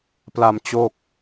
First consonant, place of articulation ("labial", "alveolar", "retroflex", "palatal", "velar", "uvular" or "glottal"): labial